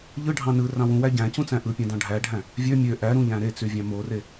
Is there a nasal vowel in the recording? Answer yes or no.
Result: yes